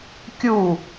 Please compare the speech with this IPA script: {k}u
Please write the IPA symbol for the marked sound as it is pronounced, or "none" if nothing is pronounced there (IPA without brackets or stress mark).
kʲ